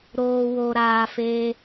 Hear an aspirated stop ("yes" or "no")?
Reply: no